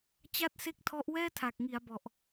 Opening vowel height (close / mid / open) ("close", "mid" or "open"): open